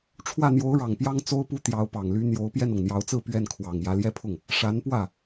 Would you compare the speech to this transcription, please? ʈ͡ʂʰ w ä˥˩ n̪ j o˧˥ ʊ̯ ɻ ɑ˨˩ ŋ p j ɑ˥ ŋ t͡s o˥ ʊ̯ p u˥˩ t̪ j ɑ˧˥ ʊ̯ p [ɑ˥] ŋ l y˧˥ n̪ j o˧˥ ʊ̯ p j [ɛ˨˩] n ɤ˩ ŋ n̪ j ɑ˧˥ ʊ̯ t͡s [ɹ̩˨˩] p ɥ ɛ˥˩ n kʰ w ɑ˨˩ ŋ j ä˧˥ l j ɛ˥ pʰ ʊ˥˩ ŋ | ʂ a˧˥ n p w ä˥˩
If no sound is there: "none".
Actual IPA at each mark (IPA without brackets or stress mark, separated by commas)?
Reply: ɑ˨˩, ɛ˥˩, ɹ̩˥˧